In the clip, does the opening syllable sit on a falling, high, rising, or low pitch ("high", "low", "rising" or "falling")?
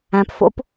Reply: low